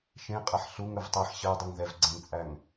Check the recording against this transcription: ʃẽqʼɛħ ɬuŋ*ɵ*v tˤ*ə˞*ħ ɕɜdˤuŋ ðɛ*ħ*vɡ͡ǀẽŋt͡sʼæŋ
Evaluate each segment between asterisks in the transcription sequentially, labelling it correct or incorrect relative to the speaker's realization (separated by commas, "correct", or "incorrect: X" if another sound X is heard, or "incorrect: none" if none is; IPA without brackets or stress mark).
correct, incorrect: ɜ, incorrect: none